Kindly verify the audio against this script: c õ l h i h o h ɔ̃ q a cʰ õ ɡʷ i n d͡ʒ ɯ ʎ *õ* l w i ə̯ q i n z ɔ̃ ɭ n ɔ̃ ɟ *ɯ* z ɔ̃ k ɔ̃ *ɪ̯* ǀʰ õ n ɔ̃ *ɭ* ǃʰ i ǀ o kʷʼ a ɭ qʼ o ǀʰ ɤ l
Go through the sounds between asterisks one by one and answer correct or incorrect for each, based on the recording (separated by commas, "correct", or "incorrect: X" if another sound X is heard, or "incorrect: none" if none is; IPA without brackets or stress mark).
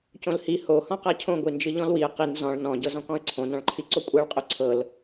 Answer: incorrect: ɔ̃, incorrect: ɤ, incorrect: ə̯, correct